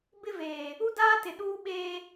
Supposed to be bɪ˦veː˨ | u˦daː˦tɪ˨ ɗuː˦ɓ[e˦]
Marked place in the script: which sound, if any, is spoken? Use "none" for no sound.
eː˦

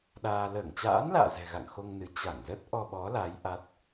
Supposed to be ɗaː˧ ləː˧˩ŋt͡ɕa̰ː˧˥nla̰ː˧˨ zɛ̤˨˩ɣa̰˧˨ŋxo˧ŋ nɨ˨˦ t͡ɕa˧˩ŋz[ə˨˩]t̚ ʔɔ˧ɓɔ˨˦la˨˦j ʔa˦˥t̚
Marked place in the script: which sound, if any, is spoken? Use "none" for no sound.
ə˦˥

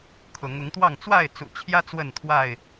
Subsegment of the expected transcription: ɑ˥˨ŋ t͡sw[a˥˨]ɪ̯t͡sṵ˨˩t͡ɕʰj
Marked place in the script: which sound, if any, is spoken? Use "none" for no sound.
a˥˨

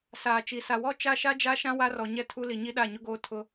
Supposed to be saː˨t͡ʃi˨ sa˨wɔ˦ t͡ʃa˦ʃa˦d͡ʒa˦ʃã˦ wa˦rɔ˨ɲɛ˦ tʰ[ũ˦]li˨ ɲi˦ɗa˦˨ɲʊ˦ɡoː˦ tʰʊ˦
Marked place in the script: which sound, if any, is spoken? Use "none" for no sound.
u˦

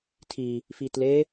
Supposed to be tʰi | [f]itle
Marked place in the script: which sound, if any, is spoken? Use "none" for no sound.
f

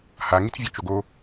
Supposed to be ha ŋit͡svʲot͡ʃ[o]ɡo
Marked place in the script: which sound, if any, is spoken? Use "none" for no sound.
o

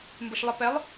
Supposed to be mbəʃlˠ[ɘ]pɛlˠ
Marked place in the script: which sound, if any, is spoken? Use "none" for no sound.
ɘ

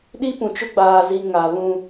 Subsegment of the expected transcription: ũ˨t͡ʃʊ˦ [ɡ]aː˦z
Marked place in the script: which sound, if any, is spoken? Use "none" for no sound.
ɡ͡b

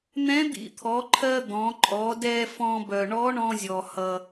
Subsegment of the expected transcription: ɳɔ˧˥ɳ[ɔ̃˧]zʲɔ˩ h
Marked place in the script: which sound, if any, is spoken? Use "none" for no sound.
ɔ̃˧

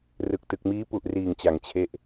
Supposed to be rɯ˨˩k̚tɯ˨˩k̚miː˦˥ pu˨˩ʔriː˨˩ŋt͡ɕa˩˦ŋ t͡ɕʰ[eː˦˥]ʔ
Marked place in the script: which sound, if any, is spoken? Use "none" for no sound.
e˦˥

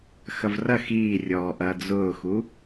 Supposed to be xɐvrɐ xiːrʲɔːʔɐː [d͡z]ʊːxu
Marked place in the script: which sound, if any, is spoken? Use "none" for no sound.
d͡z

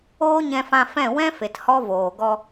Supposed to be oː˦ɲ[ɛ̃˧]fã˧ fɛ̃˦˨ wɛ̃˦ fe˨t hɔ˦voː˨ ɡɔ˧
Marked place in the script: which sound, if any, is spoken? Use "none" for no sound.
ɛ̃˧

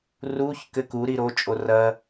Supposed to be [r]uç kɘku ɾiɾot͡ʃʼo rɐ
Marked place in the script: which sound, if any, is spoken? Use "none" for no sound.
r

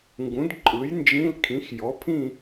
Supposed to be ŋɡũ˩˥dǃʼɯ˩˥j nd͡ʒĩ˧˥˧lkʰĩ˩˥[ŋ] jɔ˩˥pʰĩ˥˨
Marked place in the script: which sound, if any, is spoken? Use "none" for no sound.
x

